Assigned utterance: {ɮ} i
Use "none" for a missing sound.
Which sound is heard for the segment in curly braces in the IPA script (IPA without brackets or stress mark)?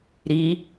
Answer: ɾ